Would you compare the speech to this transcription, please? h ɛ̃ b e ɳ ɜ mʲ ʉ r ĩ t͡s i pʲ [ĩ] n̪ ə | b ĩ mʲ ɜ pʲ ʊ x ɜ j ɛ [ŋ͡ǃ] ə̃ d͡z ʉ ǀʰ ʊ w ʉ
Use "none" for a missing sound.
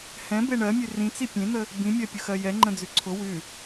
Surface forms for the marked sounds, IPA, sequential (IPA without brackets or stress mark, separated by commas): ẽ, ŋ͡ǃ